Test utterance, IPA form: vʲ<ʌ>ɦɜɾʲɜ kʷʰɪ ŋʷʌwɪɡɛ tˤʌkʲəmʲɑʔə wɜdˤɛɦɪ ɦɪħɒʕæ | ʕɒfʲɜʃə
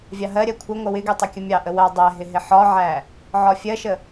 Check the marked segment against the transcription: incorrect: ɑ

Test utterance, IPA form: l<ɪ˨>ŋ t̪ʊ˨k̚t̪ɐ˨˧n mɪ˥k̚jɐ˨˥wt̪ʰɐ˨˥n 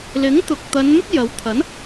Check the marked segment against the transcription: incorrect: ɪ˨˥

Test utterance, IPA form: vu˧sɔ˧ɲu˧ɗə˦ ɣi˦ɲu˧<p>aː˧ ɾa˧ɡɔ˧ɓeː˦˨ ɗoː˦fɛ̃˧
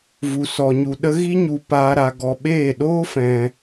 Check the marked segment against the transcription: correct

